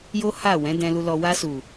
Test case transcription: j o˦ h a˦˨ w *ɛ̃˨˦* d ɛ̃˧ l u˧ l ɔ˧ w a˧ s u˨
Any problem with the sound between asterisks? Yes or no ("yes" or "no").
no